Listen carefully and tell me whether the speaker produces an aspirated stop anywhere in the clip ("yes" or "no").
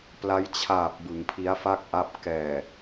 yes